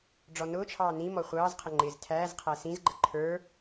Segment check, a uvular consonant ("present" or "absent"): present